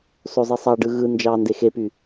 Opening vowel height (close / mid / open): mid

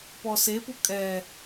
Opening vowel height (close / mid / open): mid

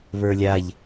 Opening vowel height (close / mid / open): mid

